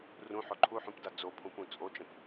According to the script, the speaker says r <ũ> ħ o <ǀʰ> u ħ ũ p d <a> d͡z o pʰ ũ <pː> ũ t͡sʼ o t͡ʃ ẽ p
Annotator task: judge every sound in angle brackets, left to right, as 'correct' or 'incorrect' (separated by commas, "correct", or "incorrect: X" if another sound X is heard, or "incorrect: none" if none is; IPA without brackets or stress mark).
correct, incorrect: ǃʰ, correct, incorrect: p